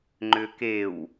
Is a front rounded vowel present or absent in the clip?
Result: present